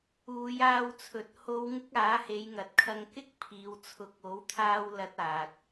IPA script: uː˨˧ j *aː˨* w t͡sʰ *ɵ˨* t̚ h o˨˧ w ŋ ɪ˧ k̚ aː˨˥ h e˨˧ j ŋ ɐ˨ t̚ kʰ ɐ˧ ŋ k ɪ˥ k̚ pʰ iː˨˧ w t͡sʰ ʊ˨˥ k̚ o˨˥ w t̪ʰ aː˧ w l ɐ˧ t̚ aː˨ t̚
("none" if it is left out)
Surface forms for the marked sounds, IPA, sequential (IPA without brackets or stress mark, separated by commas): aː˧, ɵ˨˥